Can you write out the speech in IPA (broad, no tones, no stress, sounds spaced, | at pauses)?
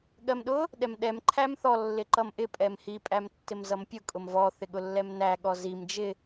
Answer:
ɠ ɜ m ɗ ʊ | ɗ ɛ m ɗ ɛ m ǃʰ æ m θ ɔ lː ɪ ǃ ʌ m ʔ ɪ pʼ ɛ m h i pʼ æ m tː ɪ m z ʌ m pʲ ʊ kʼ ʊ m v ɔ θ ɪ ɠ ʊ lː ɛ m n æ ɠ ɔ z i m d͡ʒ ɪ